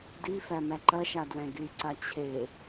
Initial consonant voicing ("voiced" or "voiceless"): voiced